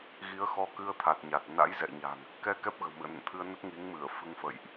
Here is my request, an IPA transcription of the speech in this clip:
ɣi˨˦ə̯xɔ˧kɨ˧ə̯t̪ʰa˨˩t̚ ɲa˨˩t̚ na̰˧˥jzɛ̰˧˨ɲa̤˨˩ŋ | kɛ˧ kɛ˦˥p̚ɣə̤˨˩wmɨ̰˧˨ə̯nə̰˧˨n t̪ʰɨ˧ə̯nə˦˥t̚ ŋi˨˦ŋmɨ˧˩ə̯ fɨ˧ŋfə̰˧˨jʔ

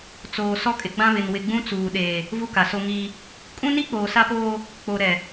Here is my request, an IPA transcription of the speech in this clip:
t͡soː˨ sɔ˦kʼɪ˨ ɡ͡bã˦βɪ˨n wɪ˨ɡ͡bũ˦ t͡suː˨ɗeː˨ | vu˦ka˨so˦ŋiː˦ | kʼũ˦ni˦k͡poː˨ sa˦poː˦ | k͡po˨ɾɛ˨

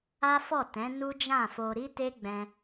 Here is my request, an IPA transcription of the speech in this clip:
a˦fɔ˦˨ tɛ̃˨˦ nu˦d͡ʒã˦˨fo˧ ɾi˦te˦ɡ͡bɛ̃˧

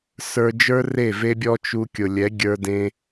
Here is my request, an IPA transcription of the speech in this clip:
sə˞˧d͡ʒə˞˦ re˦˨ve˦bʲɔ˦ t͡ʃu˧ kʲʊ˨lʲɛ˨˦ ɡʲə˞˧dẽ˧

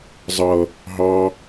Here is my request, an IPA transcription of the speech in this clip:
zˤʌ | ɦɑ

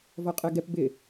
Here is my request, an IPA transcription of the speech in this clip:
vɔqʼɛɡɛp bɪ

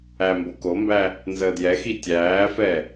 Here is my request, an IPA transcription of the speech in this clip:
æ mbokombæ | nzəːdjɛxi tʲæːfɛ

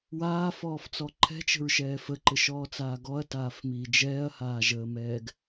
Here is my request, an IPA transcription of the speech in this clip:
waːfɔːft͡sɔ ǃʰɛ̤t͡ʃə̤ɹʃɛː fəǃɘʃɔːt͡saː ɡɔɐ̯taːfmiː d͡ʒɛːɐ̯haːʒəːmɛːɡ

